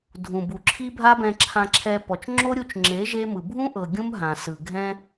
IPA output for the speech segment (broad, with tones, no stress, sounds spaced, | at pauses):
dʱ ũ˨ b u˨ ǁʰ i˦ bʱ a˦ b ɛ̃˧ ǁʰ ã˧ ǁʰ ɛ˧ p ɔ˨ t͡ʃ ŋ͡ǁ o˦ ɾʲ u˧ t͡ʃ ŋ͡ǁ e˨˦ ʒ e˦ m ɯ˨ bʱ ũ˦ ʔ ɤ˨ ɡʲ ũ˦ m ɦ ã˨ s ɯ˨ ɡʱ ɛ̃˦